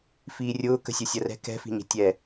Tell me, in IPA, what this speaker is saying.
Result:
f iː rʲ ʊː k ə̤ sʲ o sʲ ɐ r ɛ̤ k ɛ̤ f i̤ ɲ ə̤ tʲ ɛ

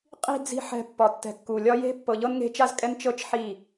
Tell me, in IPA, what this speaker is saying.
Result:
qʼ i̤˨ d͡z i̤˨ ħ ɛ̤˨ pː ɒ˨ tː ɛ̤˨ kː u˨ lʲ ɒ˦ j e̤˦ pː ɤ˨ ʎ ɤ˦ n ŋ e̤˦ t͡ʃ a˦ z kʼ ɛ˦ n t͡ʃ ɤ˦ t͡ʃ ħ i˦˨

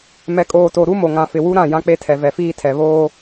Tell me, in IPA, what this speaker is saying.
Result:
m ɛ˨ kʼ oː˨ t o˨ ɾ u˦ m o˨ ŋ ã˨ f ɪ˨ w u˦ ɾ ã˦˨ j ã˦ k͡p e˦ tʰ ɛ˨ v ɛ˨ f iː˦ tʰ ɛ˨ β oː˦

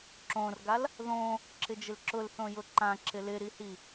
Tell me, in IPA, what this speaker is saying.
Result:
ǁ õ r ɡ a l | ð õ | ǁ ɪ d͡ʒ ɪ l ǁ ʊ l θ õ j ʊ ǃ ã ǁ ɪ l ɪ ɾ i h i

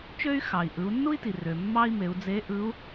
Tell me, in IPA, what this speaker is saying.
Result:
t͡ʃ ø˥ y̯ x ɑ˩ i̯ ʔ ɯ˩˧ u̯ nː u˥ i̯ t i˩ r ø˩ mː ɑ˥ i̯ m e˩˧ u̯ d͡z e˧˥ ʔ ɯ˧˥ u̯

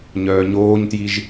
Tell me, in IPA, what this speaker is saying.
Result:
ɲ œː ɲ oː ɲ t j i ʒ

